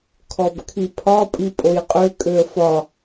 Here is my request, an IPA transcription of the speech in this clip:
kʰ ɔ b kʰ i pʰ ɒ pʼ i pʼ o j qʼ ø kʼ ø ə̯ f ɒ

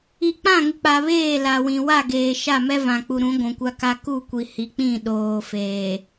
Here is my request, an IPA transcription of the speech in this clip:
i˨ k͡p ã˦˨ ŋ ɪ˨ k͡p a˨ β eː˦˨ l a˨ w ĩ˨ w a˦˨ ɡ eː˨ ʃ a˦˨ m ɛ˦ v ã˨ k͡p u˨ ɾ ũ˨˦ ɡʷ ũ˨ kʷ a˦ k a˦ k u˦˨ kʷ i˨ h i˨ k͡p ĩ˦˨ ɗ oː˨ f eː˨

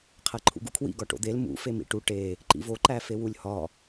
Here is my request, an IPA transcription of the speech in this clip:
qʰ æ ǃʰ ṵ ɡ ṵ kʰ w ḭ ɡ ɒ ʈ o̰ d̪ e l m ṵ f e m ḭ ʈ u ʈ e | ǃ ḭ v o ǃ æ f e w u lʲ h ɒ

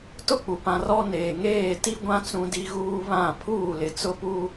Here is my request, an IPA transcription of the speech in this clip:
t ʊ˦˨ k͡p u˨ p ã˨ r ɔ˦ n eː˨ ŋ eː˦˨ t i˦ ɡʷ ã˦ t͡s ũ˦ d i˦ ɣ uː˦ β ã˦˨ pʰ uː˦˨ l ɪ˨ t͡s ʊ˦ p u˦

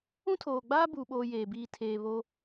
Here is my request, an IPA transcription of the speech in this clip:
ũ˦ tʰ oː˨ ɡ͡b aː˦ b uː˦ ɓ oː˦ j eː˨ b iː˨ tʰ eː˨ β o˦

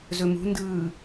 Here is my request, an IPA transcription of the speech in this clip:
z ɵ m ṳ n d ɯː

